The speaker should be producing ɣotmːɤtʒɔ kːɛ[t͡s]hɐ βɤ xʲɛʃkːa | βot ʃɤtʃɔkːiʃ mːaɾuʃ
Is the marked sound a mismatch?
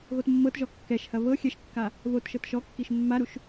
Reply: yes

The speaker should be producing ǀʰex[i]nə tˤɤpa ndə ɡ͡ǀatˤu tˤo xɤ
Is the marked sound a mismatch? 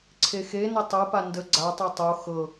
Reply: yes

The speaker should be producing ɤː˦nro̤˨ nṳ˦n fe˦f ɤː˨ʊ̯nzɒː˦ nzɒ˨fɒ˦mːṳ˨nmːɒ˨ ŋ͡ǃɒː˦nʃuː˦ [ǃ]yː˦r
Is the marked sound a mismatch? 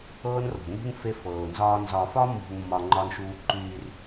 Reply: no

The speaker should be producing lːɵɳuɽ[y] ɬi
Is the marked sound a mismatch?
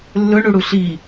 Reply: yes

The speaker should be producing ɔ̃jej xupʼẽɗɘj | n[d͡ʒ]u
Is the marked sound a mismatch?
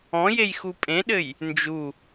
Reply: no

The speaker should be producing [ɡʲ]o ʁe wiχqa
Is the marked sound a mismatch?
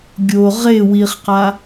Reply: no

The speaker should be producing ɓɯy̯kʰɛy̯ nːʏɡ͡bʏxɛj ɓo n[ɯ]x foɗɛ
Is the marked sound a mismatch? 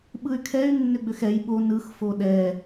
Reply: no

